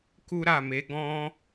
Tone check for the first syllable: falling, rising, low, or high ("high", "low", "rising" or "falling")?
high